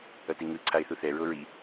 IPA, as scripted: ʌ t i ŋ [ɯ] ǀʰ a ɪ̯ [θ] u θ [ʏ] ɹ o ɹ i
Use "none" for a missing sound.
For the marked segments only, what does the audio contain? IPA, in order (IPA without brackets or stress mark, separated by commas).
ɯ, θ, ɛ